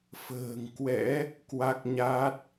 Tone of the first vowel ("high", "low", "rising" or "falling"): low